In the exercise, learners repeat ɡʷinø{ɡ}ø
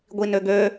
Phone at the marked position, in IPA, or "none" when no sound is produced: ɡ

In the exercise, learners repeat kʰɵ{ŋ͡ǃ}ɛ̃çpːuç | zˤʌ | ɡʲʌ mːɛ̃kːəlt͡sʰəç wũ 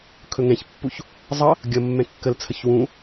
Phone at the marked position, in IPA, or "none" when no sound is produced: ŋ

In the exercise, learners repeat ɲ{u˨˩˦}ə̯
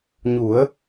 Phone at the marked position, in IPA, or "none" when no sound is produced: u˨˩˦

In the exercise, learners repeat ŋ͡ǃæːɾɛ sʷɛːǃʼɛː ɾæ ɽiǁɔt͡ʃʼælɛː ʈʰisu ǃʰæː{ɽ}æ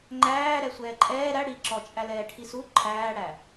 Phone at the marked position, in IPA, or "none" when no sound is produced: ɽ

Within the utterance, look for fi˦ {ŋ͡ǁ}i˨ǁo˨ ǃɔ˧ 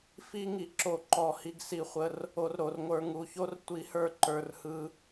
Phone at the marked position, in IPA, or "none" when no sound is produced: ŋ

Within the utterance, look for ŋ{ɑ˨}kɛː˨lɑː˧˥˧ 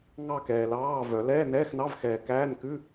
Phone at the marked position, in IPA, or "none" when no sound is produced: ɑ˥˧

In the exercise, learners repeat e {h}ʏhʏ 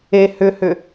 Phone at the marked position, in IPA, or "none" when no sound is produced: h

